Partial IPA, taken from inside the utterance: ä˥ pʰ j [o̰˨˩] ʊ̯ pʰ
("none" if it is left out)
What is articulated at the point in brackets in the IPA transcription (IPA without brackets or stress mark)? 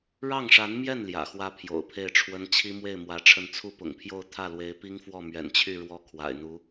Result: o̰˨˩